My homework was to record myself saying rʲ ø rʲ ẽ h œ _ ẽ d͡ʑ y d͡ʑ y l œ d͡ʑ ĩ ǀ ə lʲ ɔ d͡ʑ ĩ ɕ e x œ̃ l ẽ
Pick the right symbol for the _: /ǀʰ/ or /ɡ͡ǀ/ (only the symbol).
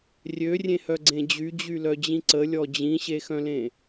ɡ͡ǀ